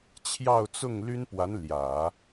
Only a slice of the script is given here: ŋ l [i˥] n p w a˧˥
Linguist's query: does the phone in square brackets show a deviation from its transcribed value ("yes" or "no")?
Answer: yes